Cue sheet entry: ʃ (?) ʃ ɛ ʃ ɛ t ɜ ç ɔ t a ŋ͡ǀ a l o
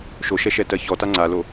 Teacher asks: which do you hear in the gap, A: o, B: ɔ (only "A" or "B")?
A